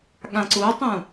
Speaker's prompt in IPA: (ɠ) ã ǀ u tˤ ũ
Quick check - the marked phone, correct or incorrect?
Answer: correct